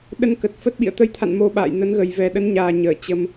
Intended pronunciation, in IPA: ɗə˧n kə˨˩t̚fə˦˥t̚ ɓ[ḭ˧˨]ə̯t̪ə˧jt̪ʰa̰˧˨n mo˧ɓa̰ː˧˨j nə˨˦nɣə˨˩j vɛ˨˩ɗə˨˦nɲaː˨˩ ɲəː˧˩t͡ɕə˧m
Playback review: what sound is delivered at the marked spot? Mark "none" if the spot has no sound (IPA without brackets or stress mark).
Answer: ḭ˧˨